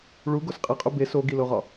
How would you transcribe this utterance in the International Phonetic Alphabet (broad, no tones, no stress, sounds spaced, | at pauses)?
ɭ u ɡ o s qʼ i qʼ u b e s o ɡ i l o ʁ ɒ